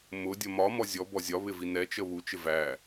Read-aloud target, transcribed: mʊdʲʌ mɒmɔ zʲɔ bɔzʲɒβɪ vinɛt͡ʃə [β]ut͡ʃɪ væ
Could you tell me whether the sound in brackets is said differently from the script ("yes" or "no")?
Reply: no